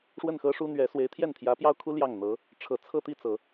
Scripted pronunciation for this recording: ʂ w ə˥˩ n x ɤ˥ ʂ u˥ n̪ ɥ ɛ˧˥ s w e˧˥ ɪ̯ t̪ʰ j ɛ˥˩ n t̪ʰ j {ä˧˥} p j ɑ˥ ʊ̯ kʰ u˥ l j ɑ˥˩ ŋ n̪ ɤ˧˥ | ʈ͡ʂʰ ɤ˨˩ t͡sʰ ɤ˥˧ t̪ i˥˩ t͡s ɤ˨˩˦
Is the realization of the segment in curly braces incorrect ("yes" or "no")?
no